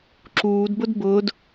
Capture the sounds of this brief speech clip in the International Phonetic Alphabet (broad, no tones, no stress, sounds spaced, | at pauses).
ǁ uː d b ʊ d b ʊː d